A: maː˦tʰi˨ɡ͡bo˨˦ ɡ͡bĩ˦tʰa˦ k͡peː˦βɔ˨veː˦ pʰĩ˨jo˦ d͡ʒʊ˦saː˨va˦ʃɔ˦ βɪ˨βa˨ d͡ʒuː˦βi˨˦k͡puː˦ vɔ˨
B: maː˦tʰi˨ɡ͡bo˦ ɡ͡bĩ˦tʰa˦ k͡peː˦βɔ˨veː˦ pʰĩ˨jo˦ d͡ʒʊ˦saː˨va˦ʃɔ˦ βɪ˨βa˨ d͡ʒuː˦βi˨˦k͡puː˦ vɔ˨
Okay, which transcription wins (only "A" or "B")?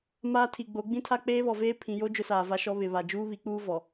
A